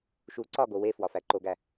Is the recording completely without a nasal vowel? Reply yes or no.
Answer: yes